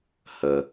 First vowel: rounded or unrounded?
unrounded